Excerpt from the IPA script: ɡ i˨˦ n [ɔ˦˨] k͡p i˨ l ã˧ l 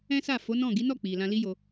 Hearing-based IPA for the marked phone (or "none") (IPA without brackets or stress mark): ɔ˦˨